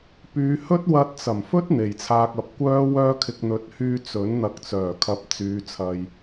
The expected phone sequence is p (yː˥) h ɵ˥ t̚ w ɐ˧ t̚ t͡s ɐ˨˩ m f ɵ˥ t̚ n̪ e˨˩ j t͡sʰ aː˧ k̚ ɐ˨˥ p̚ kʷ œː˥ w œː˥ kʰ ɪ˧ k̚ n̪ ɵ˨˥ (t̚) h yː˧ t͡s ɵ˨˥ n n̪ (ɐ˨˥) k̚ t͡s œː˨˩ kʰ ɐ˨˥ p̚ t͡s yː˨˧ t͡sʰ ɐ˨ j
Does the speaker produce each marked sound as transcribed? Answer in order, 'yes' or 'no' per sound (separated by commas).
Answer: no, yes, yes